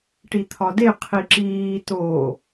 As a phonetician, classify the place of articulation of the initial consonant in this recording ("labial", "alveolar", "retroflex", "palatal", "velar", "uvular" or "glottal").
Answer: retroflex